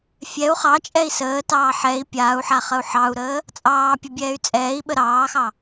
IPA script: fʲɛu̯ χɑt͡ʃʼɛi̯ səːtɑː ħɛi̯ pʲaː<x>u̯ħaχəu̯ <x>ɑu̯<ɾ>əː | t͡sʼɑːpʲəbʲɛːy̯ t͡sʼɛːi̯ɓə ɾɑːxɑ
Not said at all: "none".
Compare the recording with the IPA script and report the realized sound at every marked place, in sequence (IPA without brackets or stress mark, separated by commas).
none, ħ, ɾ